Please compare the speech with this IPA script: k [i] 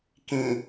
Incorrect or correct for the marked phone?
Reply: incorrect: ĩ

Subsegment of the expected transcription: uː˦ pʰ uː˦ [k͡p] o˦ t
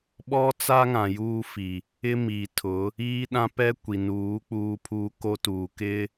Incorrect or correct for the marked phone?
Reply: incorrect: k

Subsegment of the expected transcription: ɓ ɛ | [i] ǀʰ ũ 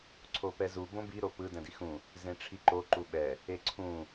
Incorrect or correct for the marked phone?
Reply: incorrect: e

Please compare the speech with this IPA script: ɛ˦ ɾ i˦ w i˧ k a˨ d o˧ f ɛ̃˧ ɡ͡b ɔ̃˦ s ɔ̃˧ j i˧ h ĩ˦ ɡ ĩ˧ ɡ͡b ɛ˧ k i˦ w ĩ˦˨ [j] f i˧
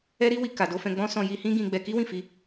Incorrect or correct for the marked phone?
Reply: incorrect: none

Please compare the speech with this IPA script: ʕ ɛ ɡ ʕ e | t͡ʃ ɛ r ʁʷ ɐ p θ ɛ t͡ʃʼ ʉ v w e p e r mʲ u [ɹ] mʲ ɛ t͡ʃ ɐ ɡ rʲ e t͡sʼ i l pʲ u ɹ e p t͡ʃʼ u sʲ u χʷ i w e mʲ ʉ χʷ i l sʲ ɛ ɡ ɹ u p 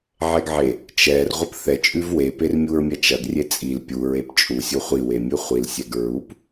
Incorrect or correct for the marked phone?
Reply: correct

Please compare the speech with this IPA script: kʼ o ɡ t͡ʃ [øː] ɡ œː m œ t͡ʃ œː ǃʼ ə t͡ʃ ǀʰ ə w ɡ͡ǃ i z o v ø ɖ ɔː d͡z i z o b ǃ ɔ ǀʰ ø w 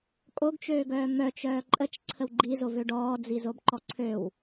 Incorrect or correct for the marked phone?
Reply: correct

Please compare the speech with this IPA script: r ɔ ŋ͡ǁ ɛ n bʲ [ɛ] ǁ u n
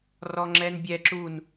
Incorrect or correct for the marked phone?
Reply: correct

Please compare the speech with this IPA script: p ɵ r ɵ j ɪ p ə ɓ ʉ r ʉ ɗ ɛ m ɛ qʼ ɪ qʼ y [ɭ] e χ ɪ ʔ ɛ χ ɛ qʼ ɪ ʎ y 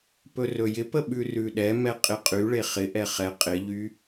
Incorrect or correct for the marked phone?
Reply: correct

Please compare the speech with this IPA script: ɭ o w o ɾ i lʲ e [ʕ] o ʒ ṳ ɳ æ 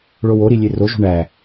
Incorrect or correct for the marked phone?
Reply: incorrect: r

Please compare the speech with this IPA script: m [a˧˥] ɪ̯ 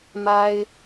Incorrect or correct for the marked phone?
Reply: incorrect: a˥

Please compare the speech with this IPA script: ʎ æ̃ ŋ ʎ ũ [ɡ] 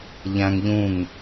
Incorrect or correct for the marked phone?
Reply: incorrect: ŋ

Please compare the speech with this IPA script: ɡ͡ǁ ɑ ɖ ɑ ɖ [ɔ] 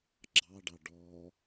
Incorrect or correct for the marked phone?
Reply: correct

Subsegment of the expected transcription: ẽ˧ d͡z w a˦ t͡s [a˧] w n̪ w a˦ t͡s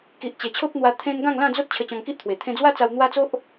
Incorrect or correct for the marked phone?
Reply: correct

